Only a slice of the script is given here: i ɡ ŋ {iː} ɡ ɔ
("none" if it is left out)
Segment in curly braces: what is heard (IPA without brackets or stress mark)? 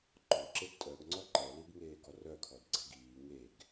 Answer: eː